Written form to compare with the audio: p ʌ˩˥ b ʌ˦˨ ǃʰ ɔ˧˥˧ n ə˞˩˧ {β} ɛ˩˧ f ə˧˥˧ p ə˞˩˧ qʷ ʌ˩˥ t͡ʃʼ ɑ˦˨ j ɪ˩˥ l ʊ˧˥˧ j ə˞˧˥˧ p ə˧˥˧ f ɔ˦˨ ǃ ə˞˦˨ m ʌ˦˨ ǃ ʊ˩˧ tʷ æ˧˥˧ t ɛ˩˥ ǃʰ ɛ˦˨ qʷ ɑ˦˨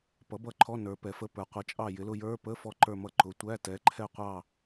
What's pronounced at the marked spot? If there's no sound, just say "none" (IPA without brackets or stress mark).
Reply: p